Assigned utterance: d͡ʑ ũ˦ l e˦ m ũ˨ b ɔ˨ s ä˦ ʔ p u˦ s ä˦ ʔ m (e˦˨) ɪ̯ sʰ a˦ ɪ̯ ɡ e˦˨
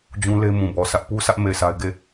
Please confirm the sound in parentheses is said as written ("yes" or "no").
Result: yes